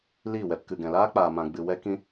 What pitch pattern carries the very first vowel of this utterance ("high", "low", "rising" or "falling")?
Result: falling